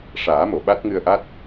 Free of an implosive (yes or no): no